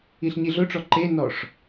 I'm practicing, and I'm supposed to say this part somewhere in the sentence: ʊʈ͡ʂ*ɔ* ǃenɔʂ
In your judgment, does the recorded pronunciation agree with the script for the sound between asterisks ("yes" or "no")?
yes